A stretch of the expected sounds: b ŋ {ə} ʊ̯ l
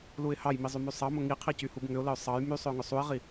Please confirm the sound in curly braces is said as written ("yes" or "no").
no